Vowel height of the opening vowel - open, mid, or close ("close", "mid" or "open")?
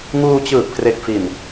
close